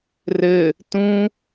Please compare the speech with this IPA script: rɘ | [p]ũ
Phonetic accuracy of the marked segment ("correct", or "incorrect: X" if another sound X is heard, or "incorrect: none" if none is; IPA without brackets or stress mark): incorrect: t